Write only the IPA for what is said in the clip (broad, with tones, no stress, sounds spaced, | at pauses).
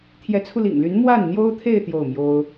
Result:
t̪ʰ j ɛ˧˥ t͡sʰ u˧ l ḭ˨˩ ŋ l y˧˥ n m w a˥˩ n n̪ j o˥ ʊ̯ t̪ʰ e˥˧ ɪ̯ t̪ j o˥˩ ʊ̯ m j o˥ ʊ̯